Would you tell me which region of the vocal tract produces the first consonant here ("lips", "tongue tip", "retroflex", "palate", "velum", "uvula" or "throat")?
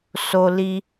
tongue tip